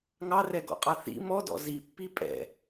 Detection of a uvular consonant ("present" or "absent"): present